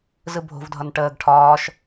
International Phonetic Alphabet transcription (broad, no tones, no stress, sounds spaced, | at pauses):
z ɯ bʱ o̤ v dʱ ʌ n ʈ əː ɡ ʈʰ ɒː ʃ